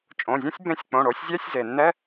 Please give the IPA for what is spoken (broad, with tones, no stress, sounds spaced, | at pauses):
t͡ʃʼ õ˩˧˩ zʲ ẽ˥ sʲ b ẽ˧˥˧ sʲ k͡p õ˩˧˩ ɽ o˩˥ sʲ zʲ ɛ˧˥˧ sʲ z e˩ nː ɛ˧˥˧